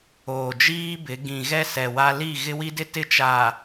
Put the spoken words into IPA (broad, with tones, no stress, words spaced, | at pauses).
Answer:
oː˨d͡ʒiː˦bɪ˨˦ ɡĩ˨ɣɛ˦sɛ˨ wa˦ li˦˨ ɣɪ˦wi˦dɪ˦ tɪ˦t͡ʃa˨